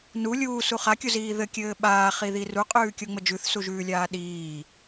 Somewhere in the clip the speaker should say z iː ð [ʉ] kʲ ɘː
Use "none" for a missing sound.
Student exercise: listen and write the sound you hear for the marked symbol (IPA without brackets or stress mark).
ɘ